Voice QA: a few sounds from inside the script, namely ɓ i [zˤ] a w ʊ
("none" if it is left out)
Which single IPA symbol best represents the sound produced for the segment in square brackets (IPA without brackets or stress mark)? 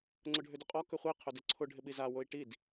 z